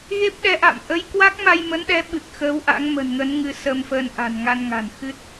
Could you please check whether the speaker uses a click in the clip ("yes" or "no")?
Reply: no